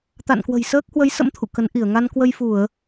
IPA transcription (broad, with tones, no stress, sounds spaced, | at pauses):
t̪ a̰˧˨ n k w ə̤˨˩ j s əː˦˥ k̚ h w ə˨˦ j s ə̰˧˥ m t̪ʰ ṵ˧˨ k ə˨˦ n ʔ i˧˩ ə̯ ŋ a˧ n k w ə˧ j f u˧˩˨ ə̯